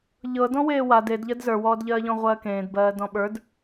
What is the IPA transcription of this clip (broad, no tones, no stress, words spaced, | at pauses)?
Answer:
ʎɤ dɔ̃weːwa dedʎɜd zə˞wɔːdʎɜːʎɔ̃ ʁʷɜːkẽːdbɜː dɔ̃ɓə˞d